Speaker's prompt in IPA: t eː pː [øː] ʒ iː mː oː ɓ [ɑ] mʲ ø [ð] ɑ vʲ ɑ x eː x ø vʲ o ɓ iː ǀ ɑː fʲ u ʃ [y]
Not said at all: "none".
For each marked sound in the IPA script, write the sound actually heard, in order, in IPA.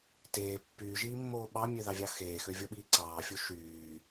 yː, ɑ, ð, yː

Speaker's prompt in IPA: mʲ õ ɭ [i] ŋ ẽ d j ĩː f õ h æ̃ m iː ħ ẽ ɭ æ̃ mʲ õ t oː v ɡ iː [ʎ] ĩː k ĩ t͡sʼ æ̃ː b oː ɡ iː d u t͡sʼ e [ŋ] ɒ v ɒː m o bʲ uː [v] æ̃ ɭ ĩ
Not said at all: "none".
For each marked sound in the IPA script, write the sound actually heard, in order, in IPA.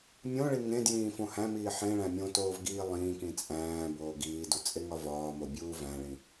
i, lˠ, ŋ, v

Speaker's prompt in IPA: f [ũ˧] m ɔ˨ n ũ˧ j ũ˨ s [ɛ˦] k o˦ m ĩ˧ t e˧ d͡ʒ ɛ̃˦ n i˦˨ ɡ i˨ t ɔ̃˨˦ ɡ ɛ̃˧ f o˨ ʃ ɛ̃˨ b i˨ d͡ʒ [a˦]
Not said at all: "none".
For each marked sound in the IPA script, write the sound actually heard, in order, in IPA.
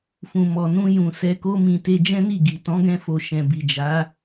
ũ˨, ɛ˧, a˨˦

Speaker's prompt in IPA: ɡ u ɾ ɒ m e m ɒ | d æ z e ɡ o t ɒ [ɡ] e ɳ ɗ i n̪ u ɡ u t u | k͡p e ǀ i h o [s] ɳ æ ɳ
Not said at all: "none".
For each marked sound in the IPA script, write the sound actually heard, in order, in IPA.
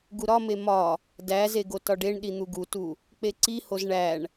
ɖ, z

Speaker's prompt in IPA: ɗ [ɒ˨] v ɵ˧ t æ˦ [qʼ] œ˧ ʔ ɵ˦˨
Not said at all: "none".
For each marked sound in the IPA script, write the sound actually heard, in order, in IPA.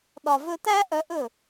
ɒ˨, ʔ

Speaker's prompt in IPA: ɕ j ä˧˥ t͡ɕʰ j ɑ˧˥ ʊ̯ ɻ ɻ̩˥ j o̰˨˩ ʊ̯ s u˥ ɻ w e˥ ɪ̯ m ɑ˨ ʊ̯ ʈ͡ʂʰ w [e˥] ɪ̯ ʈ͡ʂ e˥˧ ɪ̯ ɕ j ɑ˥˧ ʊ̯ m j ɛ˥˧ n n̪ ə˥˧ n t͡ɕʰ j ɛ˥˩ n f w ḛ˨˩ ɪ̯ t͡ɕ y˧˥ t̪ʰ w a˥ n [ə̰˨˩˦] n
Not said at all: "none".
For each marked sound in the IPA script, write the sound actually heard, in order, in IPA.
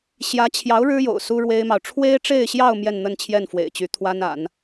e˥, a̰˨˩˦

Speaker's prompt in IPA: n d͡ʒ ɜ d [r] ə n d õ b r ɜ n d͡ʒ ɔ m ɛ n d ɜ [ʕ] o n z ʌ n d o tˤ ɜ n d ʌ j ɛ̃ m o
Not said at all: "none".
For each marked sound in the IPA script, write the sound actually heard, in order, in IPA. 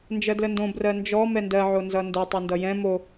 l, ʕ

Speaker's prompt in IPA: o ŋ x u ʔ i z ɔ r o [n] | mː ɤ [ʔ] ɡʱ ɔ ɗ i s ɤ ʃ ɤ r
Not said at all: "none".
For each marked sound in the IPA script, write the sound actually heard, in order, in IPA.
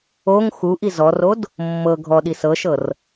d, none

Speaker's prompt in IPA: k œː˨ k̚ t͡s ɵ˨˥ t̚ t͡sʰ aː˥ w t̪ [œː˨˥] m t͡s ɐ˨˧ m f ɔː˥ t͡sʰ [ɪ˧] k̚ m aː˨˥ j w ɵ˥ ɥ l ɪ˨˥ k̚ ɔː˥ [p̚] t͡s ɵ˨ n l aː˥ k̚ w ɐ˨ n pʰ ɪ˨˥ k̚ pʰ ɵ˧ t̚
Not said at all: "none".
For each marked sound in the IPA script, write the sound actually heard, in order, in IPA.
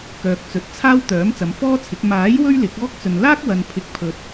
œː˨˥, ɪ˨˥, k̚

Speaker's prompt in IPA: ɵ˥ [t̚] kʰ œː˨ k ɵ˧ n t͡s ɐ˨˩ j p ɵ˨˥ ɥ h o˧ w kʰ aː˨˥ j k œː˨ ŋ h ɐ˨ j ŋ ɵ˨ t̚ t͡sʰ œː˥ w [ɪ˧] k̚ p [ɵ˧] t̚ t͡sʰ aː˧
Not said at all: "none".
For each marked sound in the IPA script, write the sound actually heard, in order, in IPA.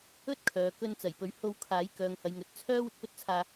t̚, ɪ˨, ɵ˥

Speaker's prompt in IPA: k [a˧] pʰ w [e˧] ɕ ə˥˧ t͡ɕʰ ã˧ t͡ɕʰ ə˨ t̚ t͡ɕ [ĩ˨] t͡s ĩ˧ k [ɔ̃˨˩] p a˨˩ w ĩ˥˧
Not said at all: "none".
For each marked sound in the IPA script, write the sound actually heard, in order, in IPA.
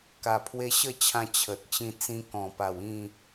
a˨˩, e˧, ĩ˧, ɔ̃˨˩

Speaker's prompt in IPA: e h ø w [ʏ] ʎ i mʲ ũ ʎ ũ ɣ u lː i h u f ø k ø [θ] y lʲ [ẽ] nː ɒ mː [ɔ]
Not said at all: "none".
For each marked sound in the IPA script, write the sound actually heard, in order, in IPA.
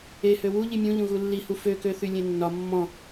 u, θ, ẽ, ɔ̃

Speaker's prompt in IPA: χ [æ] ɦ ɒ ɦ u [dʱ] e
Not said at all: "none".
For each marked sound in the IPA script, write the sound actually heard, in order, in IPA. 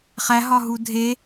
æ, dʱ

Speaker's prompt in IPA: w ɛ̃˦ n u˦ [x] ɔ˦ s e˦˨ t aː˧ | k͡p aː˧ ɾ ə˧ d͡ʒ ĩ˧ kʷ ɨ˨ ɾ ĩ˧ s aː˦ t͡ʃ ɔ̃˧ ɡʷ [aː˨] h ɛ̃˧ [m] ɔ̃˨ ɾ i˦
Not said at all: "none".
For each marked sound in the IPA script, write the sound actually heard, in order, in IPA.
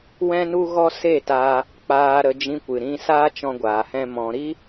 ɣ, aː˨, m

